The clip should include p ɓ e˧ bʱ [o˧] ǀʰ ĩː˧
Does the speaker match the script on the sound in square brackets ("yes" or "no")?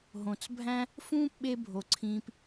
no